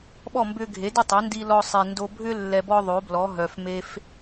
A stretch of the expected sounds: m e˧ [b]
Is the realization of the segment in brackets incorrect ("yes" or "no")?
yes